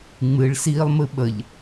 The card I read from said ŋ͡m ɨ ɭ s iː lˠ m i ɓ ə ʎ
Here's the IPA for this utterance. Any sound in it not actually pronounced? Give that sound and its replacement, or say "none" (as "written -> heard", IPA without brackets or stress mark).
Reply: i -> ɨ